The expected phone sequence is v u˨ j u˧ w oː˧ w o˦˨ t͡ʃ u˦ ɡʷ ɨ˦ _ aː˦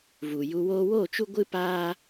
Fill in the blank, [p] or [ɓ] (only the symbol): p